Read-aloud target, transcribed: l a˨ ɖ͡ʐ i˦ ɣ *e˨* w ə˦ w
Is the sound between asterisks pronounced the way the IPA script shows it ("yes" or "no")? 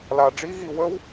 no